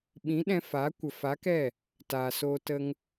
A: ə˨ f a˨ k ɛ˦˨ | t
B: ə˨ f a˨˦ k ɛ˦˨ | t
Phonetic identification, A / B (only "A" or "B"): B